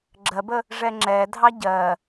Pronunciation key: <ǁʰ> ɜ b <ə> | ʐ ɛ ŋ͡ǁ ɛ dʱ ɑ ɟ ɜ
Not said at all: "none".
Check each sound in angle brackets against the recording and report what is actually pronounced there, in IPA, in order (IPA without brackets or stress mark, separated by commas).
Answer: ɡ͡ǁ, ə